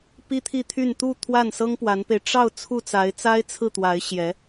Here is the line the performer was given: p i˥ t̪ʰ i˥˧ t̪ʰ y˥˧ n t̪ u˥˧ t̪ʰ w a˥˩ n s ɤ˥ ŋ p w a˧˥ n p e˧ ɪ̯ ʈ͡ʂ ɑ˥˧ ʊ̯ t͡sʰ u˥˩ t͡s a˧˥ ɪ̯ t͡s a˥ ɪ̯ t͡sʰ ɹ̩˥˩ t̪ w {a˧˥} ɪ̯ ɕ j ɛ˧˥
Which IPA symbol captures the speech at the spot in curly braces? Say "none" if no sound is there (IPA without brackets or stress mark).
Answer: a˧˥